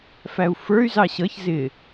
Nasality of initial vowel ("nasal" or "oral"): oral